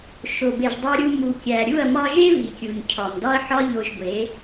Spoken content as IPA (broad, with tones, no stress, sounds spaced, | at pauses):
ʃ o˨ b e˨ ʒ dˤ u˧ ɾʲ u˧ m u˨ kʲ æ˨ ɾʲ u˦˨ ɐ̯ m ɒ˧ ʒ e˦ v i˨ kʲ u˨ ɲ cʰ ɒ˨ m d ɒ˦ ɐ̯ ħ ɒ˦ ʎ o˧ ʒ ɡʷ e˨˦